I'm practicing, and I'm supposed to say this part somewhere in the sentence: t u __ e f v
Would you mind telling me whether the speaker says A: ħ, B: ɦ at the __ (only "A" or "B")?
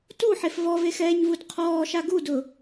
A